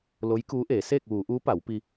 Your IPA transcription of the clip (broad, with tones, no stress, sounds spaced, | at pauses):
l o˧˥ j k uː˧˥ ʔ eː˩˧ s eː˥˨ k̚ ʋ uː˩˧ ʔ uː˧˥ p a˩˧ w p i˧